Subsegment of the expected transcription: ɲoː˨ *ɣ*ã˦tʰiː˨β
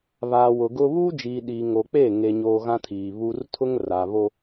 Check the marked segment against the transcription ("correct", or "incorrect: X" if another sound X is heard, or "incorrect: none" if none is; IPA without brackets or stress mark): correct